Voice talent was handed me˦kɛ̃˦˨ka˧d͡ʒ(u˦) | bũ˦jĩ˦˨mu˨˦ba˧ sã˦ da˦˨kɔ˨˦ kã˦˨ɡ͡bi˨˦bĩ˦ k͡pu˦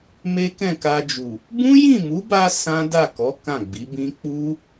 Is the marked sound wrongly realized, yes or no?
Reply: yes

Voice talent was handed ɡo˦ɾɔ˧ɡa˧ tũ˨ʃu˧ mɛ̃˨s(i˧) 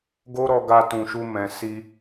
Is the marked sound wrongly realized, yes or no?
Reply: no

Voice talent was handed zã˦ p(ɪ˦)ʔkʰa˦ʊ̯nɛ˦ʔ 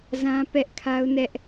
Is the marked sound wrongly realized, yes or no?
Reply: yes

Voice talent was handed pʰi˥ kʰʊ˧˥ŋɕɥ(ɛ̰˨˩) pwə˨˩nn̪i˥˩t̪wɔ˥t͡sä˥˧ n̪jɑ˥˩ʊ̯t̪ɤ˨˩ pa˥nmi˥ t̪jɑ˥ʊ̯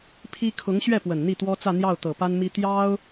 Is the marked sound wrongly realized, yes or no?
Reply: yes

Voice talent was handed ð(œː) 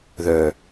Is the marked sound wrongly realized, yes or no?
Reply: no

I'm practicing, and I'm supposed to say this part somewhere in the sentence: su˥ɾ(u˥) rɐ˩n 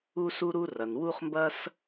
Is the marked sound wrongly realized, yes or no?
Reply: no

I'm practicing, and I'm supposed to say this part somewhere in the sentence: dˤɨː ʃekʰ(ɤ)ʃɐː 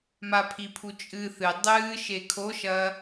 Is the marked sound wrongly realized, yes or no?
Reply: yes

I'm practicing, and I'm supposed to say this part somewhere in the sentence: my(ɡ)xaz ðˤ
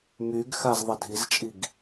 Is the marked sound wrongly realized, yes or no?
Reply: no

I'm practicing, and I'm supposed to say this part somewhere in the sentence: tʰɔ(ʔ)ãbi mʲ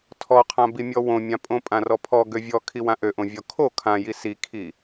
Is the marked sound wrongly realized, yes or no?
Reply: yes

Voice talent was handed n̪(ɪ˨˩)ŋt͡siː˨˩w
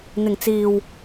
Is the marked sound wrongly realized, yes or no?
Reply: no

